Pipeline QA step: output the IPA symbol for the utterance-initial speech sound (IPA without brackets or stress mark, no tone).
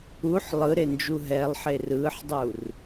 u